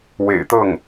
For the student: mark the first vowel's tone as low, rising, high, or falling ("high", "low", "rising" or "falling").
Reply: low